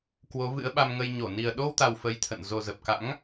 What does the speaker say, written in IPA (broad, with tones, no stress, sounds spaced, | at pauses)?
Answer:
k w o˨˦ v ɨ̰˧˥ ə̯ ɓ a˧ m ŋ ə˧ j ɲ o˧˩ n i˨˩ ə̯ ɗ o˧ w t̪ a˨˩ w f ə˨˦ j t̪ʰ ə̰˧˨ n z o˨˩ z ə˨˩ p̚ k a̰˧˥ ŋ